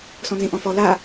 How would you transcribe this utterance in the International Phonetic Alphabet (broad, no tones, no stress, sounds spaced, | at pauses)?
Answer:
s ɔ̃ n z ĩ ʔ ɔ̃ f ɔ l a